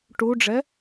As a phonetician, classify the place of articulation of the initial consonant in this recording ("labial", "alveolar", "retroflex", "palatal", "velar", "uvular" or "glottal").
retroflex